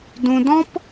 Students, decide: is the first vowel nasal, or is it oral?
nasal